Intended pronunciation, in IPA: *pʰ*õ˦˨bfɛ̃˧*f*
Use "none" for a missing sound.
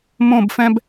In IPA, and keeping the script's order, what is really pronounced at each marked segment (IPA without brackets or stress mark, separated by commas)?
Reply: m, b